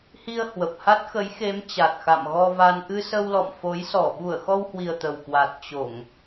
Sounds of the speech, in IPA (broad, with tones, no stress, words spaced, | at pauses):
hi˧ə̯ hwə˨˩p̚ ha˦˥t̚xə˨˦jxe˨˦m t͡ɕa˨˩t̚ xa̰˧˨mɣɔ˧va˧n ʔɨ˧sə˧w lɔ̰˧˨mfo˨˦jsɔ˧˩ ɓu˧˩ə̯xɔ˧whwi˨˩ə̯ t̪ə˨˩wkwa˨˩t̚ t͡ɕo˧˩˨ŋ